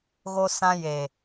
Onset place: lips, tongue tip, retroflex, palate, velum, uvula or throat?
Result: velum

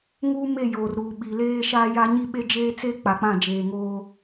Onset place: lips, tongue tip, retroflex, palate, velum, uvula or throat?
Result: velum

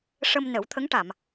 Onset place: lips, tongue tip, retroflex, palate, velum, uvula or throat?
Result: retroflex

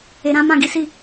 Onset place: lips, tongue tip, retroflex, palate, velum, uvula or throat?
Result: tongue tip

